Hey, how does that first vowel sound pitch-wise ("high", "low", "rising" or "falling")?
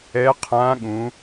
rising